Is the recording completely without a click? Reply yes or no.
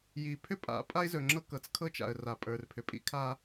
no